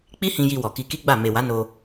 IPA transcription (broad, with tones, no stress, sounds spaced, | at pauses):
k͡p i˦ h ĩ˧ j i˧ w ɔ˨ k i˧ k i˦ ɡ͡b a˦˨ m e˨ w a˨˦ n o˧